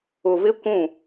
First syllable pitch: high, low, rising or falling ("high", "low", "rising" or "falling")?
low